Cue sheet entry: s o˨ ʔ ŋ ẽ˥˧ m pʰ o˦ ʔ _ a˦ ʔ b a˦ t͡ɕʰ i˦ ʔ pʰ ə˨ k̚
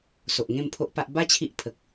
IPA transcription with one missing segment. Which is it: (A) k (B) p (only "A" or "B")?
B